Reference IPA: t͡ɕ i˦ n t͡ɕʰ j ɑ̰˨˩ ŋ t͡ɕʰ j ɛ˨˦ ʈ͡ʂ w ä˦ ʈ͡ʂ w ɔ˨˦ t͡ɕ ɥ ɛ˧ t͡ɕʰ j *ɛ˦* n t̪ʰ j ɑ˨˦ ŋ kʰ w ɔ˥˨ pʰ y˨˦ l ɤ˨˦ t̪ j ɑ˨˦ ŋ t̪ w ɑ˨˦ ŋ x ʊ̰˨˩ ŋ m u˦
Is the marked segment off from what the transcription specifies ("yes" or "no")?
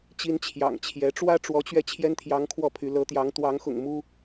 no